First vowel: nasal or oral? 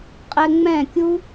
oral